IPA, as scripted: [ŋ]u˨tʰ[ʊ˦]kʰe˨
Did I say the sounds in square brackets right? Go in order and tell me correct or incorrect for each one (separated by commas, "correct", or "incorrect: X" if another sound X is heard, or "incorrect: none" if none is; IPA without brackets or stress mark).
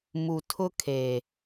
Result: incorrect: m, correct